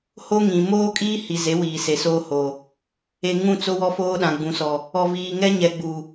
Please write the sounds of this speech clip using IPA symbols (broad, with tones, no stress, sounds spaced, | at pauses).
h o˦ ŋ ĩ˨ m oː˦ kʼ iː˦ h i˨ z e˨˦ w iː˨ s e˨ s oː˦ h o˨ | e˨ ŋ ũ˦˨ t͡s o˦ w ɔ˦ f oː˦ ɗ ã˨ ɡ͡b ũ˨ s ɔ˨ | ɔ˨ v iː˨ ŋ ɛ˦ ɲ ɛ˨ ɡ͡b u˨